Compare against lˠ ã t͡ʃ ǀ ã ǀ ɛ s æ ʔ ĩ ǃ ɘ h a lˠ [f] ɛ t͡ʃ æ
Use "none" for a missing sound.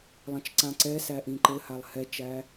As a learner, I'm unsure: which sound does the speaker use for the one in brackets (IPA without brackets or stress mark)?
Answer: h